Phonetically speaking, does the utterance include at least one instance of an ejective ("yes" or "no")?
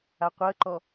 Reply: no